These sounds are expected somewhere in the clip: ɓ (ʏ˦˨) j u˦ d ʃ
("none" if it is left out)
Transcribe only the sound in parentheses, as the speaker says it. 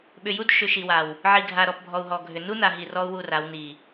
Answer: ʏ˨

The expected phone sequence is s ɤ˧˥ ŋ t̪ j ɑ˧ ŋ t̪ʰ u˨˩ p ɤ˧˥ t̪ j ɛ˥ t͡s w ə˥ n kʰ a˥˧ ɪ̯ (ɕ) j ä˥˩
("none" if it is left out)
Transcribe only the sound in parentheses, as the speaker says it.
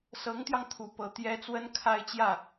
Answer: t͡ɕ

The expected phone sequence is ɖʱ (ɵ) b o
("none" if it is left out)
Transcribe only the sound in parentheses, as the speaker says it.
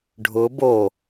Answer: ʊ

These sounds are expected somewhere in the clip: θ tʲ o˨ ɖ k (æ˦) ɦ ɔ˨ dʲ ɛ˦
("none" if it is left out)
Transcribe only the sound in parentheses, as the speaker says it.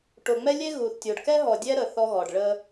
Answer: ɛ˦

